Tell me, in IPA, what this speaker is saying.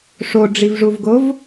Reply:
ʂ o ɖ͡ʐ i v ʐ u v ɡ o v

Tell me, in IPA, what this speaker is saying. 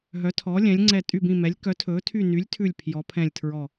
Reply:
ɦ œ˨˥ tʰ ɔ˨˥ lʲ ɛ̃˨˥ lʲ ŋ͡ǀ ɛ˦˨ tʼ y˦˨ b ĩ˦˨ m ɛ˨˥ lʲ k œ˨˥ tʰ ɵː˨˥ tʰ y˦˨ n y˨˥ lʲ tʰ ʉ˦˨ lʲ pʰ j ɔ˨˥ pʰ ɛ̃˦˨ lʲ tʰ ɹ ɔ˦˨

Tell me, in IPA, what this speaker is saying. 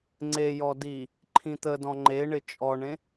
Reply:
ŋ͡ǀ e j ɔ d i | ǃʰ ĩ t̪ ə d ɔ̃ ŋ͡ǃ e ɳ ɪ t͡ʃʼ ɔ ɳ ẽ

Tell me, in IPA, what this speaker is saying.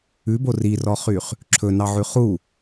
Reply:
ʉ b o r i r ɔ χ y χ | ǁʰ ɵ n ɑ ʕ ʉ χ u

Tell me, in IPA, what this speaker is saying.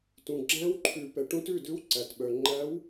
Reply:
t ũ˨ ɡ͡ǁ æ̃˧˥ w ǃʰ ʉ˨˩˦ p ɛ˨ ʈ ũ˧˥ t ʉ˥˩ d ʉ˧˥ w ǀ æ˨ t ɓ œ˨ ŋ͡ǃ æ˧˥ w

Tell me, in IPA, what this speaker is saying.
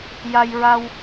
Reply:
j a˧ j ɹ a˧ w

